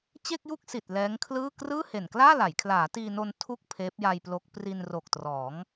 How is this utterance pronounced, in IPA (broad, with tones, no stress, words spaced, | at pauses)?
t͡ɕe˥˩k̚ju˥˩k̚si˨˩t̚ lɛː˦˥ŋkʰlɯː˥˩ krɯː˥˩he˨˩nklaː˥˩la˩˦j kʰlaː˩˦tiː˧no˧n tʰu˥˩k̚ pʰeː˦˥p̚ja˧jplo˦˥k̚ pri˧nro˨˩k̚trɔː˩˦ŋ